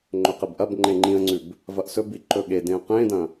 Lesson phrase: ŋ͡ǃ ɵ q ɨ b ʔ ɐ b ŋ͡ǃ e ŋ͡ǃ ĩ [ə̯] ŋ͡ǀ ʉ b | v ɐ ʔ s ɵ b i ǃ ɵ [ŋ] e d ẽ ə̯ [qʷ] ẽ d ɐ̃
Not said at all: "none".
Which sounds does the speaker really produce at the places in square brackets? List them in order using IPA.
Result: ə̯, ɠ, q

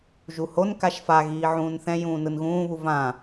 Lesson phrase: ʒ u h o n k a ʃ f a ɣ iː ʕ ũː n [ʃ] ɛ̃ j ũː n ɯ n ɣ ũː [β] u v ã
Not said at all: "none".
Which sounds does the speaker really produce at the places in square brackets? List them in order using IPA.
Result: θ, β

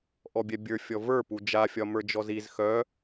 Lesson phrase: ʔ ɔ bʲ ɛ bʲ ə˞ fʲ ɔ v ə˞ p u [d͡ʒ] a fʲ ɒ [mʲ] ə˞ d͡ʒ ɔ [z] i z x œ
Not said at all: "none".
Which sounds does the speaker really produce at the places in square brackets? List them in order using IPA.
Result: d͡ʒ, m, z

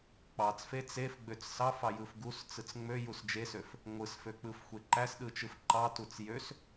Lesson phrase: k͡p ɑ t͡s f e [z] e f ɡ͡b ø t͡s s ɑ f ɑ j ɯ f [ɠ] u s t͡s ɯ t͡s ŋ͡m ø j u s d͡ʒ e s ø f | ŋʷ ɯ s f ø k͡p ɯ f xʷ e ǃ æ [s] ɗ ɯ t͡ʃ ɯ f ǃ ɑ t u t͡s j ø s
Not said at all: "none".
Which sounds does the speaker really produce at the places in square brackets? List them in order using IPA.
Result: t͡s, ɡ, s

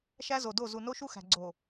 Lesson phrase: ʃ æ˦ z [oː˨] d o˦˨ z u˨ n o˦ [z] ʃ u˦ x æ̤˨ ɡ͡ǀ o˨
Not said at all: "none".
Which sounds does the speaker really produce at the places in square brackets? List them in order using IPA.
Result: o˨, none

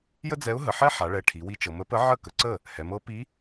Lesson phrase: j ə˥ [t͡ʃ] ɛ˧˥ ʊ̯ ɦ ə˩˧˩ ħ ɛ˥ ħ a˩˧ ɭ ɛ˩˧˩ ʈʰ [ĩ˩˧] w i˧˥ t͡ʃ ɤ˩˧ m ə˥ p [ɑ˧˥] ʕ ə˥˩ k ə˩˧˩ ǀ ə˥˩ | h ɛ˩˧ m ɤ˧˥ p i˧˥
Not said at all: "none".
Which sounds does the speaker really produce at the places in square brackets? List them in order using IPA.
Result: d͡z, i˩˧, ə˧˥

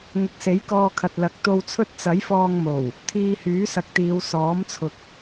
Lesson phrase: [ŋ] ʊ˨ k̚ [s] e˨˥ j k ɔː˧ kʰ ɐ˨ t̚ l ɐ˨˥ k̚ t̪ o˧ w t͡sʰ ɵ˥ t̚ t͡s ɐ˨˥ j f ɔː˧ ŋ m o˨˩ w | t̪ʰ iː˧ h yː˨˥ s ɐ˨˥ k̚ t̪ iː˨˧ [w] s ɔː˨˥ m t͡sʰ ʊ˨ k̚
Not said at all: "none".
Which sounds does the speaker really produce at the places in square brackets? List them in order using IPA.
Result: ŋ, s, w

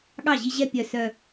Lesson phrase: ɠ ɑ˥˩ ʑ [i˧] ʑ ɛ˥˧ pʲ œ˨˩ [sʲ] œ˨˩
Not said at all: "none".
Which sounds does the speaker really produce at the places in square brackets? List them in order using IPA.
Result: i˧, s

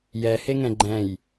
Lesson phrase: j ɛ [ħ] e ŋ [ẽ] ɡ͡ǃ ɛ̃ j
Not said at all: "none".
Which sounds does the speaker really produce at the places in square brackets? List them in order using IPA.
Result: h, ɛ̃

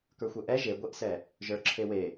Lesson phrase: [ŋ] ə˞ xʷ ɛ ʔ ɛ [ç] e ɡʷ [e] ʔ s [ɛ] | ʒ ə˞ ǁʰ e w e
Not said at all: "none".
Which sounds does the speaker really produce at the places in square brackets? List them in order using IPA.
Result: k, ʒ, e, ɛ

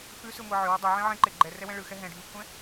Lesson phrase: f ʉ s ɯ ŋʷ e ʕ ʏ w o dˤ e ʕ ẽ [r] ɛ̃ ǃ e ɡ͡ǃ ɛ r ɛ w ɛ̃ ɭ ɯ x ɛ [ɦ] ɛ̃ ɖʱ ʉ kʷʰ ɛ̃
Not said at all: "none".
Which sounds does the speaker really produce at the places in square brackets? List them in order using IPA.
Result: ʕ, ɦ

